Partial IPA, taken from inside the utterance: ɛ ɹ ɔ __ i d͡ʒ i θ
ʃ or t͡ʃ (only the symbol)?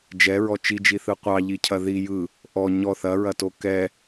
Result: t͡ʃ